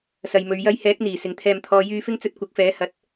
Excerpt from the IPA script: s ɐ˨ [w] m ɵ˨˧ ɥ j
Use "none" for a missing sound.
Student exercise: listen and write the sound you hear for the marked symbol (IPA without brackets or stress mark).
j